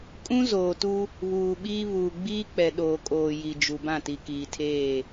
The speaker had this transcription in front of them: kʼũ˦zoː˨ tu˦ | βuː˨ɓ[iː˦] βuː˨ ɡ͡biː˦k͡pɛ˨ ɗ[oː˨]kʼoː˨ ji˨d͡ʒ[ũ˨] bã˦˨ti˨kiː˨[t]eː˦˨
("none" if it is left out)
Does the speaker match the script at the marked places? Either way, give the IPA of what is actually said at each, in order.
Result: iː˦, oː˨, u˨, tʰ

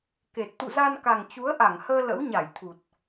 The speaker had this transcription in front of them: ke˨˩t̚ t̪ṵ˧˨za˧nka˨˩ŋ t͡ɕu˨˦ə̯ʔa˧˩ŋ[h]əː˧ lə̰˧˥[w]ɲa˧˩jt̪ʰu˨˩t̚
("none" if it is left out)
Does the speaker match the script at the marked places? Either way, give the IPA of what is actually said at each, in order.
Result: h, w

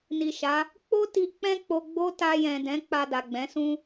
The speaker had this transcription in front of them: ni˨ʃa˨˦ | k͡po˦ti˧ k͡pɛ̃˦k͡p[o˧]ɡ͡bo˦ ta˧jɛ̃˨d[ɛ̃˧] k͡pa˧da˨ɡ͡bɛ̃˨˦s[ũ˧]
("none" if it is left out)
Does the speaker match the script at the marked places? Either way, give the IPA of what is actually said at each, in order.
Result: o˧, ɛ̃˨˦, ũ˦

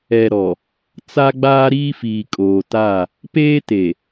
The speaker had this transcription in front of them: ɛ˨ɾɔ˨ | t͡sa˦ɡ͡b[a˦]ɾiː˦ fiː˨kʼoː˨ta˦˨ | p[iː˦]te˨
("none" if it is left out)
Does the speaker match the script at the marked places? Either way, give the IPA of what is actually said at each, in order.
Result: aː˦, eː˦

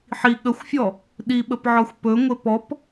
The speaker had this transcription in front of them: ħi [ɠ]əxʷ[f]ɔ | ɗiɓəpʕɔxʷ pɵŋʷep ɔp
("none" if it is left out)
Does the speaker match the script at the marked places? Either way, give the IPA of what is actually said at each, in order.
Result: ɠ, fʲ

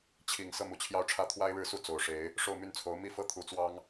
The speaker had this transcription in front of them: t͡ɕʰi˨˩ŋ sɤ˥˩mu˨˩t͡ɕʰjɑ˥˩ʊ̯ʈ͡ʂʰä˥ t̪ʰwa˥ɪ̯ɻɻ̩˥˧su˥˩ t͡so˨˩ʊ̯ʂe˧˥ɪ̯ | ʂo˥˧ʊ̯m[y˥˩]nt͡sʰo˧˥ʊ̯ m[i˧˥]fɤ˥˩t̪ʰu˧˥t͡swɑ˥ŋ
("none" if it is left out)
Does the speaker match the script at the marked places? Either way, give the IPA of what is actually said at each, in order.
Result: y˥˩, i˥

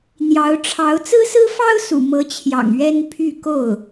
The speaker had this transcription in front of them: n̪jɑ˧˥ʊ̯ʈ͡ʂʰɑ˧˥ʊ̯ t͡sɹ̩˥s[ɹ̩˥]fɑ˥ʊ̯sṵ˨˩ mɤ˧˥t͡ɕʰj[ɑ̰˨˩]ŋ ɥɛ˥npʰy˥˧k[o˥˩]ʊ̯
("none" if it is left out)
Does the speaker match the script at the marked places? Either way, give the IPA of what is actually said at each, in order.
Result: ɹ̩˥, ɑ̰˨˩, o˥˩

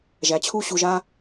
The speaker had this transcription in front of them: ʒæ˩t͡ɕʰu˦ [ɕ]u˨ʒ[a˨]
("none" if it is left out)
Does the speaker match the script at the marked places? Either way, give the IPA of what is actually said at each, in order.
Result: ɕ, a˦

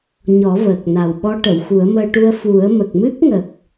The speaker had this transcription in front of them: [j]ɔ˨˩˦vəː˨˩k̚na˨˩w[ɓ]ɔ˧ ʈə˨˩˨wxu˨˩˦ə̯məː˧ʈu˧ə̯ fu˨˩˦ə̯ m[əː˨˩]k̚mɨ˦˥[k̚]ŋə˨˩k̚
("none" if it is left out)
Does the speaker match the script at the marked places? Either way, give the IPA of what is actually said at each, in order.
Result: ɲ, ɓ, ə˨˩, k̚

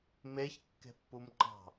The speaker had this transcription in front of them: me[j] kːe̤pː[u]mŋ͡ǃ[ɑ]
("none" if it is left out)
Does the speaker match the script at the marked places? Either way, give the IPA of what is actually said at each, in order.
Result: ç, u, ɑ̤

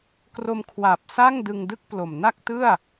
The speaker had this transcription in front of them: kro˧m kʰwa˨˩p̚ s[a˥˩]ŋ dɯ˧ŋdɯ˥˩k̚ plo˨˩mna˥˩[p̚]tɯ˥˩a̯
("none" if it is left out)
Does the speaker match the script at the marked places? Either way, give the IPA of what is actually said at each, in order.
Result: a˥˩, k̚

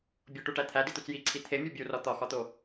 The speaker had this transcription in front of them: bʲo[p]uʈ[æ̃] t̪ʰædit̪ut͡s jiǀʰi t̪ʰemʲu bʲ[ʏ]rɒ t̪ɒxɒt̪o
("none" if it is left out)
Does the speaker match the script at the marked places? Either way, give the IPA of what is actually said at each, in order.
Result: ʈ, æ, u

